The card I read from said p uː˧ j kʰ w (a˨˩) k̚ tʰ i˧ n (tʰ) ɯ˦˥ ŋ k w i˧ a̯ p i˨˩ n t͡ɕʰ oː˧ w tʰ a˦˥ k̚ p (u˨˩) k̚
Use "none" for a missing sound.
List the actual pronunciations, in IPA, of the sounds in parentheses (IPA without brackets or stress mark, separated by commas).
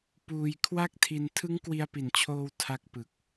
a˥˩, tʰ, ɯ˨˩